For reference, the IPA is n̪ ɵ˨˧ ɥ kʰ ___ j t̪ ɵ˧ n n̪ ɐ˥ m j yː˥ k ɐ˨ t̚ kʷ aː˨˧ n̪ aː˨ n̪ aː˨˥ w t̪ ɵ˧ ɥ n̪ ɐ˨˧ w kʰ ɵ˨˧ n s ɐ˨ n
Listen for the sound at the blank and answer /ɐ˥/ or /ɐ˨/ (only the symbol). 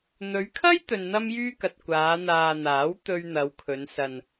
ɐ˥